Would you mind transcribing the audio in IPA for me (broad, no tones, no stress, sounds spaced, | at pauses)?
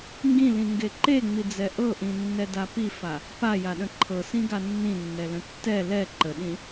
ŋ ɡ ĩ l ĩ ŋ ɡ e ǃ e ŋ͡m i d͡z ɛ ʔ ɤ ʔ ĩ nː ɛ d a p i f a | p a j a ɗ ə̃ ǃʰ ɤ s ĩ ɡ a nː ĩ nː ɛ l ə̃ tː ɛ l ɛ ǃ ə ɗ ĩ